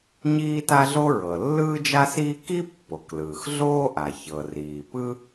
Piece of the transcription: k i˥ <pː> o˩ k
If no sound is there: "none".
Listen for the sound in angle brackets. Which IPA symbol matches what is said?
pː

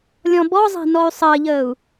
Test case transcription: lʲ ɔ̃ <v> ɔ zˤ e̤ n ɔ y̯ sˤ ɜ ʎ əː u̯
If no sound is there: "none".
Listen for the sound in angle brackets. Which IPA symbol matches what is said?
b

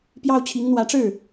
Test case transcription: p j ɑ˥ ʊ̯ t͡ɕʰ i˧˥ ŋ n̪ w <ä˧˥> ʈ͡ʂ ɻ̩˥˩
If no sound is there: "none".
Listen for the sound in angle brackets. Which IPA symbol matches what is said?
ä˧˥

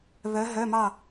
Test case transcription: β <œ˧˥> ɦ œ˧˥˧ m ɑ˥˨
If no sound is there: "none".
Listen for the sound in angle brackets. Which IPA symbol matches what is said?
œ˧˥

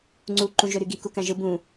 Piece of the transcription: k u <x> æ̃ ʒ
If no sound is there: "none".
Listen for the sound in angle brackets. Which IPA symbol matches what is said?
k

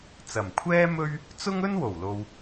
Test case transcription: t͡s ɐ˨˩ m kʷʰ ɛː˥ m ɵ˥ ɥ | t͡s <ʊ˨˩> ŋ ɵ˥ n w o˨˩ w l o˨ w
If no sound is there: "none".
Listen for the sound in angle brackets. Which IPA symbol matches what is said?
ʊ˥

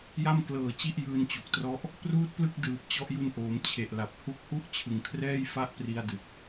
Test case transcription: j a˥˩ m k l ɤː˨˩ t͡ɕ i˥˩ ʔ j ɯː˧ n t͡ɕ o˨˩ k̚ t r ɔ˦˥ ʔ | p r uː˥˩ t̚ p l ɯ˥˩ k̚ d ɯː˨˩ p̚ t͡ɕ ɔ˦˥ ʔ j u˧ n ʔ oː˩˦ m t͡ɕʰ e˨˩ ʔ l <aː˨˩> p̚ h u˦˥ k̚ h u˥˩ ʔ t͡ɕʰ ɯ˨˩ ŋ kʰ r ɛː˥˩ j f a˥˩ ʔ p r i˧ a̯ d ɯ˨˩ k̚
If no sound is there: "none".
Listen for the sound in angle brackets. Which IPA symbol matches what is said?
a˨˩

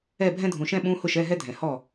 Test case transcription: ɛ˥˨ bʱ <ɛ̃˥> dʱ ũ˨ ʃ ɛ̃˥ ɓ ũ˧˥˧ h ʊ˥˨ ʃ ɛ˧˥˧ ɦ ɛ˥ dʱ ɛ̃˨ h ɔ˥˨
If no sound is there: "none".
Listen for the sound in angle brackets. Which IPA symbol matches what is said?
ɛ̃˥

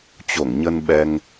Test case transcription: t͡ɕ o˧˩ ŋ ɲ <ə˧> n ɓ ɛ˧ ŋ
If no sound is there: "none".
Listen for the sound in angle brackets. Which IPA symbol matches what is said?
ə˧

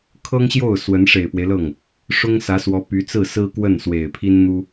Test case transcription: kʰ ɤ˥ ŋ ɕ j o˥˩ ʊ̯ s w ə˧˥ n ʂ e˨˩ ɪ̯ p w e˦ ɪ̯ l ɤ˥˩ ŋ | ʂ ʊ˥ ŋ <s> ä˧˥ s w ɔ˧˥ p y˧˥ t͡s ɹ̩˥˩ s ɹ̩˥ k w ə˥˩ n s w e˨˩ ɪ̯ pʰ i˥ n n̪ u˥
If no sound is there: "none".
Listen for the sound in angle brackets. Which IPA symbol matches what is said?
s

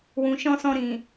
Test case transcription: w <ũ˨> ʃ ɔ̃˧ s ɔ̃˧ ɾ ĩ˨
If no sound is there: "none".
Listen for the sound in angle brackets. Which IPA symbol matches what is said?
ũ˨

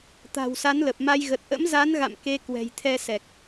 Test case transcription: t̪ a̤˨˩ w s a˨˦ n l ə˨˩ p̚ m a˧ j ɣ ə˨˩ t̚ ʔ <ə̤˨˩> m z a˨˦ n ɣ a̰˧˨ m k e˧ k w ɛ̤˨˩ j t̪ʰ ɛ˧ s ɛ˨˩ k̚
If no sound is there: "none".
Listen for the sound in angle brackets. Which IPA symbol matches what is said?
ə̰˧˥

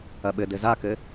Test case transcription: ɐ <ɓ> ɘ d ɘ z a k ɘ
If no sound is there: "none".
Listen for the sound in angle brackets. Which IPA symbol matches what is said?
ɓ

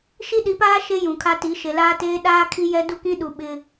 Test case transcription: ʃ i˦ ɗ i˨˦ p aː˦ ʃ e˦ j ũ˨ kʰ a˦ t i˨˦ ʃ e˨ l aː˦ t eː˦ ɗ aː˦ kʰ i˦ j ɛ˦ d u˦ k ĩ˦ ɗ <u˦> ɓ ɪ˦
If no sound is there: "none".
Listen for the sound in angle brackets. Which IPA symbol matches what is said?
u˨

